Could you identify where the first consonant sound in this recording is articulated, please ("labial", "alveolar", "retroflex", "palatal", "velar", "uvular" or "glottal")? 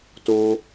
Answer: alveolar